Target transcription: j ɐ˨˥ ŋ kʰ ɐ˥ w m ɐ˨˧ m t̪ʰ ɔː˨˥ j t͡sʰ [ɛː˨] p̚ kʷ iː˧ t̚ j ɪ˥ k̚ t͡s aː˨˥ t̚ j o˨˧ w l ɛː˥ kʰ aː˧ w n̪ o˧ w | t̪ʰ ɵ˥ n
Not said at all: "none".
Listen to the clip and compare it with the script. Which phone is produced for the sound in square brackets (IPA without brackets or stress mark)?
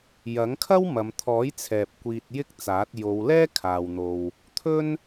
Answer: ɛː˨